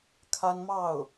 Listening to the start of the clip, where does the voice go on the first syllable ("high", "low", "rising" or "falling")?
high